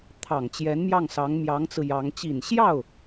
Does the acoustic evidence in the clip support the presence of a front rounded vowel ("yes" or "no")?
no